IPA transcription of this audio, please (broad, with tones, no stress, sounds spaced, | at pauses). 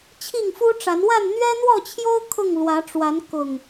t͡ɕʰ i˥˨ ŋ f u˦ ʈ͡ʂ a˨˦ n w a˥˨ n n̪ ɥ ɛ˦ n̪ w ɔ˥˨ t͡ɕʰ j o˦ ʊ̯ kʰ ʊ˥˨ ŋ l w ä˨˦ ʈ͡ʂ w a˨˦ n k ʊ˨˩ ŋ